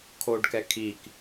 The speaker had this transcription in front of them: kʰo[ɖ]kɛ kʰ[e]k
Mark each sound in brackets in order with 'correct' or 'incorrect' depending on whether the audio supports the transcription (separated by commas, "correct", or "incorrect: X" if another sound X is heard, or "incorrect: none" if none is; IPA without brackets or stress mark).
correct, incorrect: i